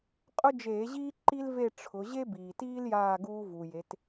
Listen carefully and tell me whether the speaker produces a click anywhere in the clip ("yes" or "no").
yes